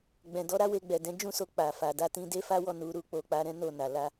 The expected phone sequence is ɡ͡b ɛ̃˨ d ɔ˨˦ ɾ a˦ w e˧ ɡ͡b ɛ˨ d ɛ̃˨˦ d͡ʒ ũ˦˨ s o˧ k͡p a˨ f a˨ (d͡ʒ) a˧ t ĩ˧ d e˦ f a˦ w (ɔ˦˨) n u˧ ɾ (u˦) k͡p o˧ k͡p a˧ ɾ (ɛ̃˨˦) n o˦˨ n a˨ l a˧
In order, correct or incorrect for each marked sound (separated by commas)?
incorrect, correct, correct, incorrect